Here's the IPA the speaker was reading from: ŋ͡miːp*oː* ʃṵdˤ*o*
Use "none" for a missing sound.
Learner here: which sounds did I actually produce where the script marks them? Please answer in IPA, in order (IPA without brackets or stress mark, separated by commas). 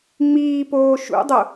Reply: oː, o